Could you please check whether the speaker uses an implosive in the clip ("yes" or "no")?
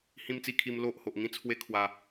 no